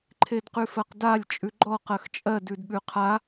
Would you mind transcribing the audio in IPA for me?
ǃʰ e d q ʉ f ɜ q d a lʲ t͡ʃʼ ʉ ɡ͡ǃ ɔ q ɜ x t͡ʃʼ ɜ d ʉ d ɓ ʉ qʰ a

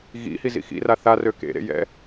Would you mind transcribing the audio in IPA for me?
ɣ ḭ h i z ḭ x ḭ r a θ a r ø k ḛ ɾ ḛ j ɛ̰

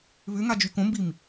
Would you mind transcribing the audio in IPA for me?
β ʏ ŋ a d͡ʒ y k õ m b i m

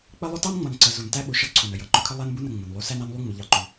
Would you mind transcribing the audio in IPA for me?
k͡p ə˦ lˠ ʊ˦ t ɑ˦ n ŋ͡m ʌ˨ n ǀ ə˨ z u˨ n t æ˦ ɓ ʊ˨ ʃ ʌ˦ ǀʰ u˨ n ə˨ j ʌ˨˦ ǃ ʊ˨ kʰ ə˦ lˠ æ˦ n b u˦ n ə˨ ŋ͡m ə˨ n lˠ u˦ s æ˦ n ɑ˦ n lˠ u˦ ŋ͡m ʊ˨ ʎ ɑ˨ ǃ u˨

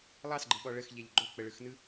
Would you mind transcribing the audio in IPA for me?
lˠ ɑ s ɡ͡ǃ ɯ ɓ ɔ ɭ ə x ʎ ɛ ʎ ɡ͡ǃ o k͡p ə ɭ ɯ x n ɯ

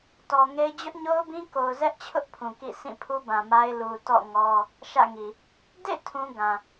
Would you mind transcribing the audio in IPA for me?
t ɔ˨ ŋ e˦ ɪ̯ d͡ʑ ʊ˦ ʔ ɲ o˦ ʊ̯ b ĩ˦ k o˨ ʊ̯ z ɛ˦ ʔ t͡ɕʰ ʊ˦ ʔ pʰ ũ˨ k ḭ˦˨ s ĩ˦˨ pʰ u˦ b ã˨ m a˦ ɪ̯ l u˨ t ɔ̰˦˨ ŋ ɔ˦ | ʃ ä̰˦˨ ŋ i˨ | d ḛ˦˨ tʰ ũ˦ ɡ ã˨

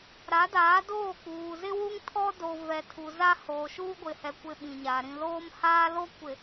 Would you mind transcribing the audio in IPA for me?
ɾ a˨˦ d aː˨˦ d oː˦˨ k͡p uː˨ z ɪ˦ w u˦ ŋ tʰ ɔ˦ d o˨ v ɛ˨ tʰ u˨ z a˦ h oː˨ ʃ uː˦ ɡʷ ɪ˨ h ɛ˨ kʷ ɪ˦ ɓ ĩ˨ ɲ a˨ ɾ ĩ˨ l oː˦ m h aː˦ l o˦ kʷ ɪ˨

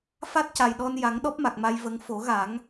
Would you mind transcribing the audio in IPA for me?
f a˦˥ t̚ c a˨˩ j ɗ ɔ˧ n j a˨˩˦ ŋ ɗ ɔ˦˥ p̚ m a˨˩ k̚ m a˧ j v ə˧˥ ŋ f o˨˩˦ ɣ a˨˩˦ ŋ

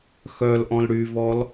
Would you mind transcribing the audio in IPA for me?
x œ l ʔ ɔ̃ l ɽ y v ɔ l

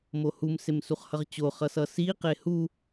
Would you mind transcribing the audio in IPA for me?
m o h u m s e m s u χ h ʌ ʁ t͡ɕ o χ ʌ s ʌ s i q e h u

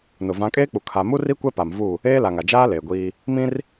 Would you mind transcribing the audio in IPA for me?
n ʊ˨ v ã˨˦ kʼ eː˦ k͡p u˨ kʰ a˨ m u˦ r i˦ kʷ ɛ˦ p a˨ m v u˦˨ | eː˦ l a˨ ŋ a˨ d͡ʒ aː˦ l eː˨ ɡʷ iː˦ | m ĩ˦ r

